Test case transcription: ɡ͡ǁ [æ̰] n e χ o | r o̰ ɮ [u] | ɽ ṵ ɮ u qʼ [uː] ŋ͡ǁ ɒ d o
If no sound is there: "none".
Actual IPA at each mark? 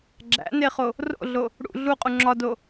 æ̰, o, u

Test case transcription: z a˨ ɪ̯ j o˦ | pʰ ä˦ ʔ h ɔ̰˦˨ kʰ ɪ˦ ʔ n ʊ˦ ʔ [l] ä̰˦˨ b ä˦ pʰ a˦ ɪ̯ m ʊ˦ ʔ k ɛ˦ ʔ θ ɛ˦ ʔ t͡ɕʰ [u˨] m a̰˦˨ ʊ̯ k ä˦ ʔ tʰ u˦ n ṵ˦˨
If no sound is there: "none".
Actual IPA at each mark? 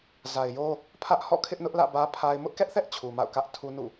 l, u˨

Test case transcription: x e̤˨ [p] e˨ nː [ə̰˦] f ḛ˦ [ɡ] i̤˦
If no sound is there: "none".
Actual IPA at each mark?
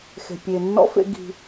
pʲ, ɔ̰˦, ɡ

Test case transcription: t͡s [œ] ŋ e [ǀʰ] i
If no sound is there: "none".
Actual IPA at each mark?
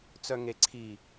œ, ǀʰ

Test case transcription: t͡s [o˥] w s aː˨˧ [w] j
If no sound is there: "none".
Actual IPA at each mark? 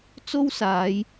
o˥, none

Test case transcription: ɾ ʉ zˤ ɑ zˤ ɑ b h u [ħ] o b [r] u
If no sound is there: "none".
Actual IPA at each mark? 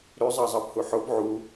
ħ, ʕ

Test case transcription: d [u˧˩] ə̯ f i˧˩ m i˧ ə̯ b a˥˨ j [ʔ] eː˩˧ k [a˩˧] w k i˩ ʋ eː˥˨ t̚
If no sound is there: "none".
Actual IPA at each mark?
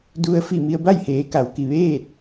u˧, h, a˩˧

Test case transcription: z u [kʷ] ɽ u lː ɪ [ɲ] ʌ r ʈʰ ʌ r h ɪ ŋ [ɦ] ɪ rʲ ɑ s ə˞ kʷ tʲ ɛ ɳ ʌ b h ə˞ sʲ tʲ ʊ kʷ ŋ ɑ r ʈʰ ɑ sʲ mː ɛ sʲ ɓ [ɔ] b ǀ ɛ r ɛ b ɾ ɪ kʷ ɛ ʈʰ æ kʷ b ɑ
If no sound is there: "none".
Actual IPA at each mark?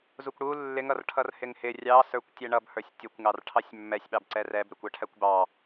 kʷ, ŋ, h, ɑ

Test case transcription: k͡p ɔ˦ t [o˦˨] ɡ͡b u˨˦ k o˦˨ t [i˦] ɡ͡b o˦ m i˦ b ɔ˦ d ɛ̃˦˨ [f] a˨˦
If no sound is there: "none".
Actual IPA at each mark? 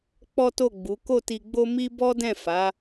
o˦˨, i˧, f

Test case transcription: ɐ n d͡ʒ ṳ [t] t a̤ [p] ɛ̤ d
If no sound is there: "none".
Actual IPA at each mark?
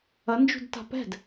d, p

